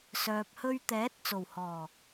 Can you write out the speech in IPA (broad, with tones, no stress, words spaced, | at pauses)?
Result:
sœː˨p̚hɵ˧ɥt̪ɛː˨˥t̚ t͡so˨˩whɔː˨˩